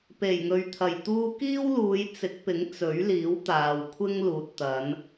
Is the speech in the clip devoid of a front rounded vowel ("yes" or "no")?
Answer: yes